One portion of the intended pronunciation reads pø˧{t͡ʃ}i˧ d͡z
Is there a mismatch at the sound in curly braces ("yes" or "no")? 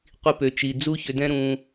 no